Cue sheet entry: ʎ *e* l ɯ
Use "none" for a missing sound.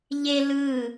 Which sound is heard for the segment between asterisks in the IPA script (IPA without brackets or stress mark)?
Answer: e